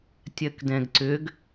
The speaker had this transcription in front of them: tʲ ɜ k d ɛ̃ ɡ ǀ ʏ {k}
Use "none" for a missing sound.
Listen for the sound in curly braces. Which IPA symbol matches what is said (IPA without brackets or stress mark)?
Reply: ɡ